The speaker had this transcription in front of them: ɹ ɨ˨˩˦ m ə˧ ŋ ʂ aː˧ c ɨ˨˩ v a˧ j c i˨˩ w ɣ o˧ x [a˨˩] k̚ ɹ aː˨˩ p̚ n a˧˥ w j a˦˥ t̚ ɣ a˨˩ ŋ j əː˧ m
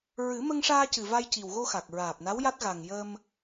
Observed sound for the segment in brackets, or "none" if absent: a˨˩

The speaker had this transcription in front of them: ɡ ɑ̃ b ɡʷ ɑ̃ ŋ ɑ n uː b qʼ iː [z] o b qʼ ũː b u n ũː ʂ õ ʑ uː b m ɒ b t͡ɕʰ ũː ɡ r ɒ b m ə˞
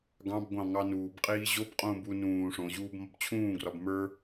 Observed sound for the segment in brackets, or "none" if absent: ʑ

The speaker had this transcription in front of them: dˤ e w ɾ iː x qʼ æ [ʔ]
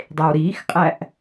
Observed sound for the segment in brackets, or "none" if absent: ʔ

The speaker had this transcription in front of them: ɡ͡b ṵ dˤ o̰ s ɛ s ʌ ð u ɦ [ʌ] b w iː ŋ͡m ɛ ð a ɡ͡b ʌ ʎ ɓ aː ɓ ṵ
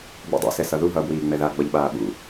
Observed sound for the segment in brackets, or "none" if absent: ʌ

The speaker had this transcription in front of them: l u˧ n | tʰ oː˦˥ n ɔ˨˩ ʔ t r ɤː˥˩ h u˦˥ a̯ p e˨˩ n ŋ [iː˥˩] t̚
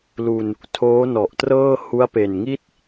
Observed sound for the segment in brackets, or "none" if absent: i˥˩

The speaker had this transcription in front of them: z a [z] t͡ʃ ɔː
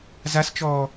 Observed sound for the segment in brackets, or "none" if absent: s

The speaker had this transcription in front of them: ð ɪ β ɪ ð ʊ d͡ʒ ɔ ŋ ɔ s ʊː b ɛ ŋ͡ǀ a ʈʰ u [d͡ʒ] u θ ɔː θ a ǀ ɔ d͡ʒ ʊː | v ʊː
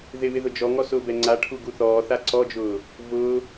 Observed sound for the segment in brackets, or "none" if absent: ɡ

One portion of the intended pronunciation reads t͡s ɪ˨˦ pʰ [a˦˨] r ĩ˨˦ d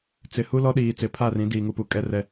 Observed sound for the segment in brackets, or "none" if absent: a˦˨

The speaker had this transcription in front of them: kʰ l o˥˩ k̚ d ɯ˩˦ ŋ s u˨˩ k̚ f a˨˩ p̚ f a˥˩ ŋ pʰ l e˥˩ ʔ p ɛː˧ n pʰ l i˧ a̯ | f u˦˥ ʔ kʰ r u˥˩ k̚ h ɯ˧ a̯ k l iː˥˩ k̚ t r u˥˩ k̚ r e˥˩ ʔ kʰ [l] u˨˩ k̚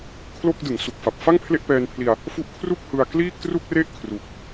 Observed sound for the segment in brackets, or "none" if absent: r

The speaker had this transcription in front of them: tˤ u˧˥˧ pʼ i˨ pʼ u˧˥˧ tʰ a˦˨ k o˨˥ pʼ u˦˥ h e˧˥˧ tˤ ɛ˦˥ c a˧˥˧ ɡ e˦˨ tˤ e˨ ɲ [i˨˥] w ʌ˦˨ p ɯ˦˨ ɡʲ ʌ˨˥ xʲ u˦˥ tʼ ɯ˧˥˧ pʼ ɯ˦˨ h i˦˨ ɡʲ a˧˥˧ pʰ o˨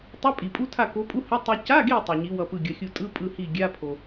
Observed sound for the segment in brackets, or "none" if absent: i˨˥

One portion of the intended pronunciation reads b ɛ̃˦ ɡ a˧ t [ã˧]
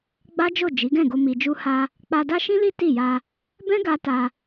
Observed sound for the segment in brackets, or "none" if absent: a˧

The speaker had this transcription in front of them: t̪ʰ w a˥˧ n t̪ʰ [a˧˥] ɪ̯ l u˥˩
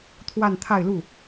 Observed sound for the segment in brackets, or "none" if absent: a˥˧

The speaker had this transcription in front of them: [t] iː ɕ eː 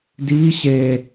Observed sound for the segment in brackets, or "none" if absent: d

